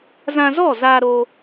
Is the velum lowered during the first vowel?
yes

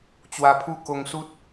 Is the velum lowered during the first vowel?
no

